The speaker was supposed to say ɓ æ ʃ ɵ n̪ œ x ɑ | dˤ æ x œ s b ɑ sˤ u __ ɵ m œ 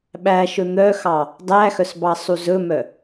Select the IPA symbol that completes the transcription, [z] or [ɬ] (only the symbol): z